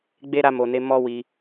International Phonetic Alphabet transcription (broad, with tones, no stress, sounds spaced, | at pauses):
ɡ͡b e˦ ɾ a˧ m o˨ n e˨˦ m ɔ˦ w i˧